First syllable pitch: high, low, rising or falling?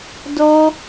high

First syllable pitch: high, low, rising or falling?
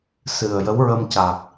low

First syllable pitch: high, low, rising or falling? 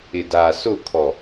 low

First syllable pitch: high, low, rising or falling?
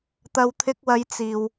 low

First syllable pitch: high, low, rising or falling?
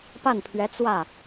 falling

